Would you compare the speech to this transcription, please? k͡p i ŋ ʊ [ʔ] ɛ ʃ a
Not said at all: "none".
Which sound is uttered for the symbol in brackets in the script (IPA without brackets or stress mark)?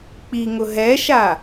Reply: ɦ